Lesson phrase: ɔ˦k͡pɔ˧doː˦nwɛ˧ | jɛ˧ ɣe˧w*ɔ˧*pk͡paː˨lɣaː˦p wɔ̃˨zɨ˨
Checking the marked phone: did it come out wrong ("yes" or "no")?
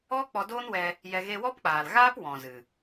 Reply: yes